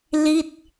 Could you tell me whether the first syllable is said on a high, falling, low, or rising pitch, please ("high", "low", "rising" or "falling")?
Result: falling